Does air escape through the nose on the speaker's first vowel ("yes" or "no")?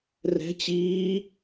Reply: no